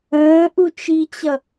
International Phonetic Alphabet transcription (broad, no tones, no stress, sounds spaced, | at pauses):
ə̃ː ʔ u t͡ʃ i t͡ɕ ʌ